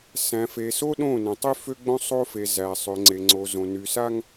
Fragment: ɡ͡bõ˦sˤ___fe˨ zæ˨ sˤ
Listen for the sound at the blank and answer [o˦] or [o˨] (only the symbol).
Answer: o˦